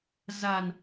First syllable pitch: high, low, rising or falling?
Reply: low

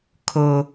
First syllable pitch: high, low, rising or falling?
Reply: high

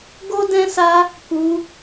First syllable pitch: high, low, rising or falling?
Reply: high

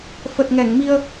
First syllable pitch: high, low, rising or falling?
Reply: low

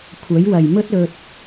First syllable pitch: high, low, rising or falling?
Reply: rising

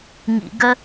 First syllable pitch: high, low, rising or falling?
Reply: low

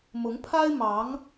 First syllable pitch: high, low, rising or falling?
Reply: rising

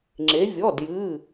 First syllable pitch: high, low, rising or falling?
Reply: rising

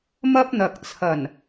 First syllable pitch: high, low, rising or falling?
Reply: high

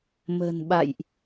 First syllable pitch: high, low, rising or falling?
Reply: low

